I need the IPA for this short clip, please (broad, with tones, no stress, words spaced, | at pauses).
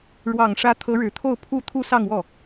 ɻwɑ˨˩ŋʂä˧˥ t̪ʰɤ˧˥ɻɻ̩˨˩ t̪ʰo˥˧ʊ̯pʰu˥˧ t̪ʰu˥˧sɑ˥˧ŋwɔ˥˩